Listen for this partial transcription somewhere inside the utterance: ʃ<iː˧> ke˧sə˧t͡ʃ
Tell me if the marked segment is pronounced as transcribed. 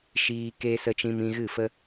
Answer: yes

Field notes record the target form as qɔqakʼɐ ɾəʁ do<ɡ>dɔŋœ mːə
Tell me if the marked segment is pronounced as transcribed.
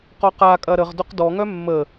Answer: no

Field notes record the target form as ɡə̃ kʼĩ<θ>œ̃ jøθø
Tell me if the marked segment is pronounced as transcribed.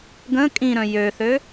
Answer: no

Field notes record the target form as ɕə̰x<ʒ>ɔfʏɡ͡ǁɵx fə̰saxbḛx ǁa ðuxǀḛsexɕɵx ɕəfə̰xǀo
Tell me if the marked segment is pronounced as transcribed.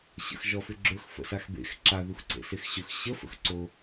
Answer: yes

